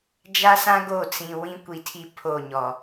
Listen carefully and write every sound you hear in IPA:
d͡ʒa˦sã˦ ɡo˦˨ t͡sĩ˨wĩ˦ kʷi˨tʰi˦ pʰo˦˨ɲɔ˨

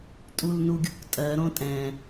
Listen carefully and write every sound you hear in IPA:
tʼulnuɡʲṳktʼɜ ɾõtʼɛ̃

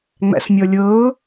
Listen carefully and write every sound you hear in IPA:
ŋ͡mæ̰smʲɔlʲɤː

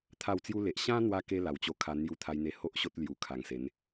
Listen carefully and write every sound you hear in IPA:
t̪ʰa˥˧wt͡sju˦le˨ʔ ɕã˦n̪wa˧ ke˦la˨˩wt͡ɕo˧ kʰa˧n̪ju˧ t̪ʰa˧jn̪e˧ho˦ʔɕo˦t̚ lju˨˩kʰa˨˩ŋse˨˦n

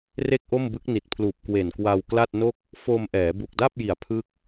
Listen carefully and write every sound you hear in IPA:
re˥˩k̚ʔo˥˩mbɯ˦˥k̚ ni˨˩t̚pʰluː˨˩p̚ kwe˨˩nkwa˧w kla˥˩t̚no˥˩k̚ | fo˧mʔɛː˩˦ bu˨˩k̚da˥˩p̚ji˨˩a̯ pʰɯ˥˩k̚

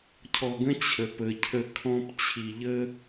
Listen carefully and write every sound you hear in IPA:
cʰɔ˨ɡə̃˦ t͡ɕʰə˨pə˨ cʰə˦ kʰɔ̃˦p t͡ɕʰi˨ʎə˦

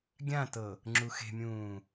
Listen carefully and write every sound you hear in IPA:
ɡʲãtɤ | ŋ͡ǁuxe̤mʲũː

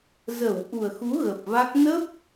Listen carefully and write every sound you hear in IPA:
zə˧˩w ʔu˨˩ə̯xu˨˦ ɣə˨˩p̚va˦˥k̚ nə˦˥p̚

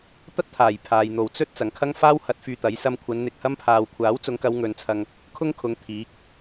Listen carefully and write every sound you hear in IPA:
t̪ɐ˥t̚t̪ʰaː˨˩j pʰaː˨jn̪o˨w t͡sɵ˥t̚ t͡sɐ˨ŋkʰɐ˥ŋfaː˥w hɐ˨˥t̚ fyː˧t̪ɐ˨˥j sɐ˧mkʷʰɐ˨˧n n̪ɪ˧k̚hɐ˥mpʰaː˧w kʷʰaː˨˥w t͡sʊ˨˧ŋkɐ˨˧w ŋɵ˨˧nt͡sʰɐ˧ŋ | kʰʊ˥ŋkʰʊ˨˧ŋ t̪ʰiː˨˥k̚

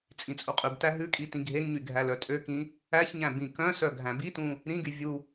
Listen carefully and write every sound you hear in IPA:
t͡sʼĩt͡sʼuqʼʉbtæ ɦʉkʼi tĩɡʱeŋɲy ɡʱælœtʼøkĩ | æçɲæ̃ bĩkœ̃sœ ɡʱæ̃bitũ | ɾĩɡy vʲu

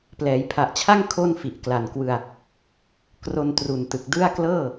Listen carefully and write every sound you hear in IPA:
plɛː˩˦jpʰa˨˩ʔt͡ɕʰa˥˩ŋ kʰo˥˩n fi˨˩ʔkla˨˩nkwɯ˧a̯ | kro˧ntru˨˩ntɯ˨˩k̚ dɯ˥˩a̯ klɤː˥˩

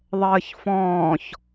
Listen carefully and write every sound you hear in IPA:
ðˤəːçfɔ̃ːç

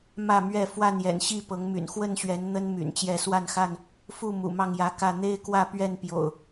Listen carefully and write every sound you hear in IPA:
mä˥˨mɥɛ˥˨ fwa˥˨njɛ̰˨˩n ɕi˥˨ pɤ˨˦ŋmy̰˨˩n xwə˥˨nɕɥɛ˨˦n n̪ə˦n my̰˨˩nt͡ɕjɛ˥˨ swa˥˨nxa˥˨n | fu˥˨ mṵ˨˩mɑ˥˨ŋjä˨˦kä˥˨ n̪e˦ɪ̯kwä˥˨pɥɛ˥˨n pjo̰˨˩ʊ̯

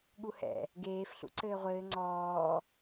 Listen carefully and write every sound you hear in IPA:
ɠuhɛ̰ | ɡeːf ɬṵǀɘːʁʷɘː ŋ͡ǀɔː

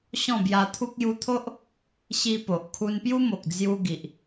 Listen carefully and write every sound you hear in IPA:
ɕɔ̃˥˧bja˧t̪ʰu˦k̚ ju˧t̪ʰo˦ʔ | ɕi˧po˨ʔ kʰu˧npju˦mo˨k̚ d͡zju˧ ɡi˨ʔ

